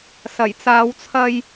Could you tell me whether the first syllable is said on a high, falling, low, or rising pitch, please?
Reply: low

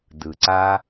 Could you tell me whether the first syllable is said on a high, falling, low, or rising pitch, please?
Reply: low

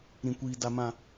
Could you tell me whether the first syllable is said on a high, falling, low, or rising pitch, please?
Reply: low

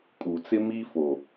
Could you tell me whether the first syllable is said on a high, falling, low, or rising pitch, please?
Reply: low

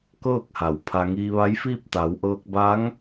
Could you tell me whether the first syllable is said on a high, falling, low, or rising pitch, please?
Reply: falling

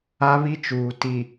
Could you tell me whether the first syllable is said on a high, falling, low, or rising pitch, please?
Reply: high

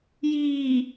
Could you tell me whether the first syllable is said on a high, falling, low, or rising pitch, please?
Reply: low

